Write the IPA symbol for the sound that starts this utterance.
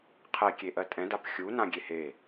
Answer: qʰ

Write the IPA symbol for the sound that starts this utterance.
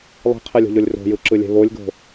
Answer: lˠ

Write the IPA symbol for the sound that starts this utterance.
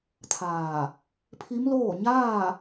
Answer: t̪ʰ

